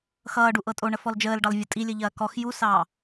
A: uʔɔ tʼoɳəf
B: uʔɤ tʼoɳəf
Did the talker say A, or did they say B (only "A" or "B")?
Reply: B